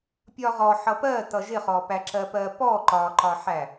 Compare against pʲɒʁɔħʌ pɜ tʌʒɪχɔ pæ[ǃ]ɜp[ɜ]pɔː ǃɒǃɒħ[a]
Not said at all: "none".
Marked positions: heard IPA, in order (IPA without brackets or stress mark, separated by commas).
ǁ, ɜː, æ